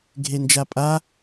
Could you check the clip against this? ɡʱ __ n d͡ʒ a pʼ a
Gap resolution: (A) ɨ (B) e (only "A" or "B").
B